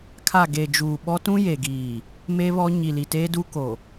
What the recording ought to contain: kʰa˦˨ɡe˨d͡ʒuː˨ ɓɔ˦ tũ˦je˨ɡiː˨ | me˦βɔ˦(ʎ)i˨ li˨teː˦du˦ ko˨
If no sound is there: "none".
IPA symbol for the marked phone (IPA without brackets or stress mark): ɲ